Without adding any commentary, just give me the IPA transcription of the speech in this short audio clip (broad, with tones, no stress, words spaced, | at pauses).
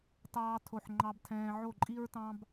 tɑː˦ tʰo˦˨ħŋ͡ǃɑ˦btʰɛ̃ː˦ ʕo˦˨ǃʼi˦ɹtɑ̃˦b